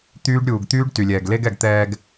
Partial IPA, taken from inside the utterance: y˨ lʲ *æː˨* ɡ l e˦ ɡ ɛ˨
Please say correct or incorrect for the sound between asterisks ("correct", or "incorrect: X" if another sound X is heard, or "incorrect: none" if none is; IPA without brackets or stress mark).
incorrect: ɛː˨